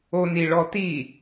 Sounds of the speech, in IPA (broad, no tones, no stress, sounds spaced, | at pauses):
o n i ɭ ɔ t i